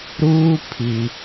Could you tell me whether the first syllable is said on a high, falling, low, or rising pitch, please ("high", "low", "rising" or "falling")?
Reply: high